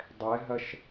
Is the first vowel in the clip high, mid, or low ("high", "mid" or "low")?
mid